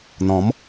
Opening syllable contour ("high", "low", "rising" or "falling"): rising